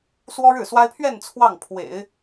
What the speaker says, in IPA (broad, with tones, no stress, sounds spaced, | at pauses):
s w ɔ˥ ɻ ɻ̩˥˩ s w a˥ ɪ̯ pʰ ɥ ɛ˥˧ n t͡sʰ w ɑ˥˩ ŋ pʰ w ḛ˨˩˦ ɪ̯